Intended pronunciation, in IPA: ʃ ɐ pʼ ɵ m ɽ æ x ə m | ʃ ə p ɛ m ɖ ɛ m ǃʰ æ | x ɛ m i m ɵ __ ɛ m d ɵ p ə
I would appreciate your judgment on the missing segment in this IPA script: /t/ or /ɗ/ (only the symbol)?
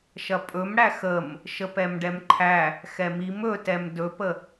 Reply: t